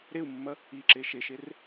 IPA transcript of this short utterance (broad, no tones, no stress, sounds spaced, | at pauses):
ɾ e u̯ mː ɐ | i ǁ e ʃ e ʃ e r